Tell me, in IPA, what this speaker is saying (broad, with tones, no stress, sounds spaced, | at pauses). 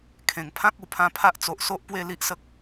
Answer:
kʰ ẽ˨˩ ŋ pʰ ã˦ k̚ u˨˩ pʰ ã˧ pʰ a˦ ʔ t͡s o˨ ʔ s o˦ ʔ p w e˥˧ l i˦ ʔ s ə˦ k̚